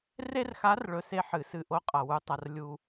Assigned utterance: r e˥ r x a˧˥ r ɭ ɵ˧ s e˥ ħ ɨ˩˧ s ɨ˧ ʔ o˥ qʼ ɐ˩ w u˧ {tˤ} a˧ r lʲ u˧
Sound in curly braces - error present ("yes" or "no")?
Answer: no